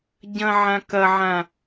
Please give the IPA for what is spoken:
ɟ ɐ̃ ʕ ã k ɐ ʕ ã

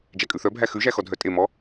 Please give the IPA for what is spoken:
d͡ʒ æ kʼ ʉ θ œ bʱ æ x ʉ ʒ æ x ɔ dʱ œ tʼ e m ɔ

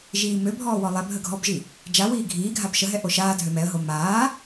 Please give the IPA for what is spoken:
ʒ iː m ø bʱ ɔː w ɔ lˠ ɛ bʱ ə ɡʱ ɔ b ʒ i | d͡ʒ a w iː ɡʱ iː ɡʱ a b ʃ ə ɦ ɛ ʔ o ʃ aː dʱ ø m ɛ ə̯ ɦ o m aː

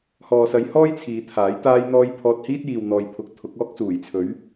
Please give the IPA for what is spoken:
h ɔː˨ s ɐ˨˧ j h ɔː˥ j t͡sʰ iː˨˧ t̪ʰ aː˨˥ j t̪ aː˥ j n̪ ɔː˥ j pʰ ɔː˧ t̚ h iː˥ t̚ j iː˨ w n̪ ɔː˨ j pʰ ʊ˨˥ k̚ t̪ʰ ʊ˨˥ k̚ ɔː˥ k̚ s uː˨˩ j t͡sʰ ɵ˨˥ ɥ

